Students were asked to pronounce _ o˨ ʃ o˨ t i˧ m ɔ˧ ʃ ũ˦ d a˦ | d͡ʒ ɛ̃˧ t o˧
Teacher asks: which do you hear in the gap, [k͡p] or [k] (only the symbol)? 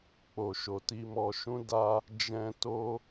k͡p